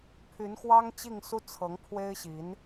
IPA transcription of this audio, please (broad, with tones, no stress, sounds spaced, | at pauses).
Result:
pʰ y˧˥ n x w ɑ˥ ŋ t͡ɕ i˥˧ ŋ s u˥˩ t͡sʰ ɤ˧˥ ŋ pʰ w e˥ ɪ̯ ɕ i˧˥ n